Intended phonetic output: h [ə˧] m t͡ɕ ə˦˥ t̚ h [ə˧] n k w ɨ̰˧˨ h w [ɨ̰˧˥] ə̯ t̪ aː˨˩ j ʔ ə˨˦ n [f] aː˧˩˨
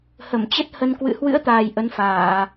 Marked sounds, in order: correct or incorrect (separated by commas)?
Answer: incorrect, correct, correct, correct